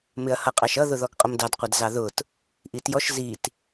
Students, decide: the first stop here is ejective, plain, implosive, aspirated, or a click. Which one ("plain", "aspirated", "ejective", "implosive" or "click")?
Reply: ejective